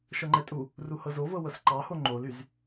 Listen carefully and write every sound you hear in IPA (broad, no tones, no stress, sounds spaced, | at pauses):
ʃ ɤ ŋ͡ǃ ɛ tʼ u | r u h ɤ z o v ɤ w ɤ s ǃ ɑ h o ŋ͡ǃ o l y z